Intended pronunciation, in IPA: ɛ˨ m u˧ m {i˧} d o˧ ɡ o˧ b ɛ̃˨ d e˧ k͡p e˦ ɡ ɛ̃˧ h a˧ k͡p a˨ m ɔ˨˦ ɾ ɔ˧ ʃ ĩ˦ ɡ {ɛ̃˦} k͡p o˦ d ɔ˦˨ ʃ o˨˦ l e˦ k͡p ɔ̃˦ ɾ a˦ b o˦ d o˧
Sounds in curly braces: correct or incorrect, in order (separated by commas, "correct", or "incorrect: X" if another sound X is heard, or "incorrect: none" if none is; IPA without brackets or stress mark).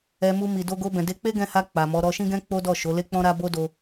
incorrect: i˨, correct